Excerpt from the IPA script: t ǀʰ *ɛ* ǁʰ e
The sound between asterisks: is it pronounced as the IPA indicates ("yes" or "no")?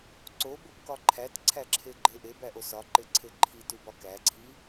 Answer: no